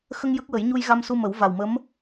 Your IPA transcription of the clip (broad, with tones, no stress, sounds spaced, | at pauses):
x ə˧ ŋ j ə˦˥ k̚ w ə˨˩˦ j ɲ u˧ j ɣ a˧ m s u˧ m ə˨˩˦ w v a˨˩ w m ə˧˥ m